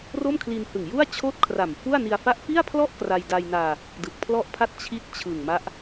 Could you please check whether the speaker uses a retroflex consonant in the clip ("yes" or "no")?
no